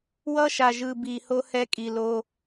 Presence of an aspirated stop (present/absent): absent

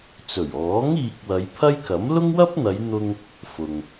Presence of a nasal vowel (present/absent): absent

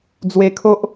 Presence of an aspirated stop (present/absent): present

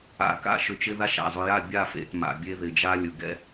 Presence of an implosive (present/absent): absent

